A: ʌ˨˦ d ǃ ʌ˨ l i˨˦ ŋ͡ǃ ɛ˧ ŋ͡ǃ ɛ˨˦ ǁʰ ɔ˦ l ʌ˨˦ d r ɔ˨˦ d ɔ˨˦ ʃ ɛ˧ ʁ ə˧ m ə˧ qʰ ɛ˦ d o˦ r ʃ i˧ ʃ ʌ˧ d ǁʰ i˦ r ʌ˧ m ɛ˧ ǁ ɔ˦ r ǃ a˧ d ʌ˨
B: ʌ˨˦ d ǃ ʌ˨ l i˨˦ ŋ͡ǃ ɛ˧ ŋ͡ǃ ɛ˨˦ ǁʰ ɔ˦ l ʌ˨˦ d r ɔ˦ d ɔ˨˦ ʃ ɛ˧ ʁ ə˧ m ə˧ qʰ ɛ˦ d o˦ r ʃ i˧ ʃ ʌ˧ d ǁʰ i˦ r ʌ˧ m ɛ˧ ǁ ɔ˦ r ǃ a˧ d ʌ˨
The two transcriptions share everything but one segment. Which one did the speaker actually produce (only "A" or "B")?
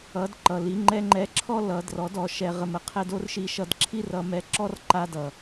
A